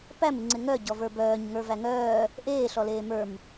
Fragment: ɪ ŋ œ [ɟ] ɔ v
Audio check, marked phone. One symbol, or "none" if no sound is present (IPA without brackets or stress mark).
ɟ